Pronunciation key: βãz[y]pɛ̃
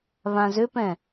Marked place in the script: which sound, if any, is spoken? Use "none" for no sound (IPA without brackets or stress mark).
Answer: ʏ